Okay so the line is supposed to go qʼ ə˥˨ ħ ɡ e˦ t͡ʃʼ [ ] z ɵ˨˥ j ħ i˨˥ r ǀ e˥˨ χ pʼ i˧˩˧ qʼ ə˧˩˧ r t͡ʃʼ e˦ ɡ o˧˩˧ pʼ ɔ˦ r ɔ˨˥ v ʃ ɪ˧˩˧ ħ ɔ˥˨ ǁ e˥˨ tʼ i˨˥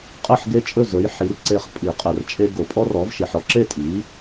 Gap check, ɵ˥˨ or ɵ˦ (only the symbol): ɵ˥˨